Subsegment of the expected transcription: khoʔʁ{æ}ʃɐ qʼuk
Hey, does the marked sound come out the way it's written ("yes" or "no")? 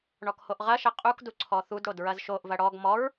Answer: no